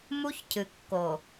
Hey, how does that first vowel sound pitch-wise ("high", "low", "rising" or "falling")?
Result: high